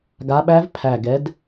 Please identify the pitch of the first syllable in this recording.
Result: rising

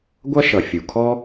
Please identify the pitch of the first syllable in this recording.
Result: high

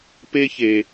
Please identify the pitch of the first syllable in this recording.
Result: high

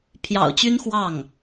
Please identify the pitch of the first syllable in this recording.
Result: low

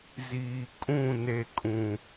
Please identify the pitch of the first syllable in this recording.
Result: low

